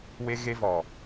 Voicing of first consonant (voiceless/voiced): voiced